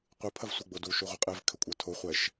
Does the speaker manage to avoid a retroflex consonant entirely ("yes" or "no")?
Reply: yes